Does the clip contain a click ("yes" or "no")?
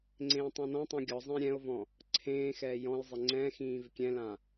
yes